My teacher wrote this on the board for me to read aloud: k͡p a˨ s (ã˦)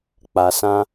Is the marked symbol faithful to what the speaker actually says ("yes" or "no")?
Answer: yes